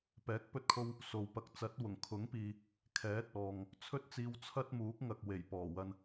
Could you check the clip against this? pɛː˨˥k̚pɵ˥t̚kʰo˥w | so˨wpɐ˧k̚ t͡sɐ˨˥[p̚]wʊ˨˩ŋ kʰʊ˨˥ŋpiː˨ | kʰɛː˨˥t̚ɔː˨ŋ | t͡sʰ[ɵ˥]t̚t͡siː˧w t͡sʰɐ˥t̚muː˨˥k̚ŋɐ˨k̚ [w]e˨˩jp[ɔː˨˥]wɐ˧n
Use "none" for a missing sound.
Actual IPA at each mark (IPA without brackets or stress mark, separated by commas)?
t̚, ɵ˥, w, ɔː˨˩